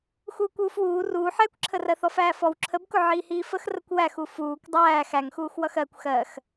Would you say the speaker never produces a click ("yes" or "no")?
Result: no